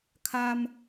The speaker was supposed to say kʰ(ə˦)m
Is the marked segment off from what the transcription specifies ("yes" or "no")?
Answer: yes